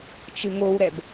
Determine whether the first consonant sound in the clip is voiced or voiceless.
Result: voiceless